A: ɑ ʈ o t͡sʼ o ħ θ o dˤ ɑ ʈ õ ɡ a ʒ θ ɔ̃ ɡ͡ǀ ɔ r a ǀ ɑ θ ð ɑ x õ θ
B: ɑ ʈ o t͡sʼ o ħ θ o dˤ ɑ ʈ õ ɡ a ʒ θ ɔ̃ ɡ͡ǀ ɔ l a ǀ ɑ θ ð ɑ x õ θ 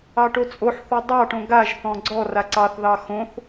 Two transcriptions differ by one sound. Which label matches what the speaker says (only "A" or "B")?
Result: A